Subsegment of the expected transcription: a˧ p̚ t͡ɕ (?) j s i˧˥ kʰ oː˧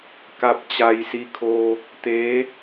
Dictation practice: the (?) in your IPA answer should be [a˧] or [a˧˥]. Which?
a˧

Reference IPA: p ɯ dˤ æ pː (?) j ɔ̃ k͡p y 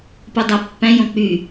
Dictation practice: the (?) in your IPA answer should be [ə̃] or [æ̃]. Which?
æ̃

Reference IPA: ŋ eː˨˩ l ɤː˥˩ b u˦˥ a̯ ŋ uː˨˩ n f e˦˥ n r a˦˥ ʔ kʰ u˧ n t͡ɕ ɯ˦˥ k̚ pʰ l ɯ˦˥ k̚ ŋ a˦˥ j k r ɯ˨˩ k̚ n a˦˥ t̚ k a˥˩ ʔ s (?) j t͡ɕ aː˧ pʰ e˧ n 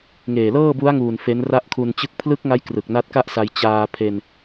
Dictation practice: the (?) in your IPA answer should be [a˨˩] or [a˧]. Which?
a˧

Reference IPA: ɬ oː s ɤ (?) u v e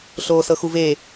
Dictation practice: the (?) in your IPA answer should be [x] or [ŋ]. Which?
x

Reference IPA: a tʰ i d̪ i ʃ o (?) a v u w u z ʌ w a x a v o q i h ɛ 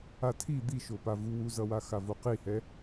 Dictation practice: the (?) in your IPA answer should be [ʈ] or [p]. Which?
p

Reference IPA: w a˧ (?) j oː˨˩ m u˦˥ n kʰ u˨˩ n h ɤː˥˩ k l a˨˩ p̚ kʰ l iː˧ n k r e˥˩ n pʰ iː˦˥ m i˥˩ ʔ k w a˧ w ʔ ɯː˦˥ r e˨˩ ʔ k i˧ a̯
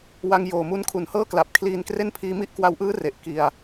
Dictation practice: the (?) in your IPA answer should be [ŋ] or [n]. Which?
ŋ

